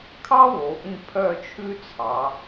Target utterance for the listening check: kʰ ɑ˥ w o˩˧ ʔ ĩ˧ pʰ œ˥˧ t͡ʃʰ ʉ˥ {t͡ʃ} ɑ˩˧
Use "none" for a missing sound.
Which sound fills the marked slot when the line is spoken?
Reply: t͡sʰ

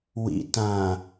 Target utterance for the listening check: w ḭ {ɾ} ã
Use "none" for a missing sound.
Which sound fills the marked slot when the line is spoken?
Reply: t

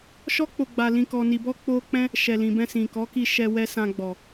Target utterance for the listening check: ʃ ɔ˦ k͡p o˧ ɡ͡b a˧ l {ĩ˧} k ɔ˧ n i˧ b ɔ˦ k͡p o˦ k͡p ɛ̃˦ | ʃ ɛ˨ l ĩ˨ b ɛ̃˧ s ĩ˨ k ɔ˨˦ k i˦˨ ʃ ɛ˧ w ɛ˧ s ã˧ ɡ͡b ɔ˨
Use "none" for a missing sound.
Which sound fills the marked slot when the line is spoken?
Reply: ĩ˧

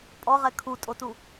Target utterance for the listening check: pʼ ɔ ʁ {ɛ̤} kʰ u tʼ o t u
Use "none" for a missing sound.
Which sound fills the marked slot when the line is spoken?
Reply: ɛ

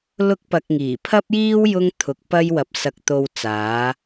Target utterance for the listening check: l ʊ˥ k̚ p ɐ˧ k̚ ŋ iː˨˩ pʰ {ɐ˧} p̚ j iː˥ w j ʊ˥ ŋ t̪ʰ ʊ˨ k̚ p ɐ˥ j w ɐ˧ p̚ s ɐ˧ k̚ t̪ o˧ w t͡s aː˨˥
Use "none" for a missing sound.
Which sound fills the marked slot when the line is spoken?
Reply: ɐ˥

